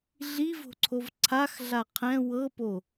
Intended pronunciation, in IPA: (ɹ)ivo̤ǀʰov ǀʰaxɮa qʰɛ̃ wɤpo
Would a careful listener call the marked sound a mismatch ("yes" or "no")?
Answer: yes